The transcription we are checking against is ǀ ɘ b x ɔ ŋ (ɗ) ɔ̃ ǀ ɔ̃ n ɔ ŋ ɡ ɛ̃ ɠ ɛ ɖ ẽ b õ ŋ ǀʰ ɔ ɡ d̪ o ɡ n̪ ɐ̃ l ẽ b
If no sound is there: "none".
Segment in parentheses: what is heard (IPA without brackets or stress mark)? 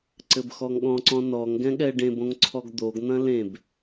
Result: ɠ